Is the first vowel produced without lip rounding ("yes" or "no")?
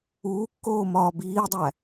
no